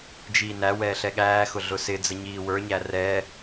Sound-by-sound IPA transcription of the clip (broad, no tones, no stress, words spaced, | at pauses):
d͡ʒiːnæ wɛːɬɛɠæː xʊɮʊsɪd͡zə ɲiːwə˞ɲæ rɛ